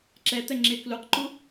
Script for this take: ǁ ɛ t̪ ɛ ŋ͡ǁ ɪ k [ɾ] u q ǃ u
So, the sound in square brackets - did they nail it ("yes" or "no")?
no